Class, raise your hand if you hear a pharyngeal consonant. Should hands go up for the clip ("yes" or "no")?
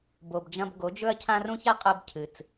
no